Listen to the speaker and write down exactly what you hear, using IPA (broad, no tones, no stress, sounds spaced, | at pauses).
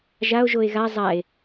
ʒ a o̯ ʒ o e̯ ɣ a zˤ a e̯